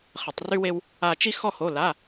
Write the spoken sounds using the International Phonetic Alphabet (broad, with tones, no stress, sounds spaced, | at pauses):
χ ə˧˩˧ tˤ r y˥ w e˥ w | a˥ t͡ʃ i˥ x ɔ˥ h o˧˥˧ l a˧˥˧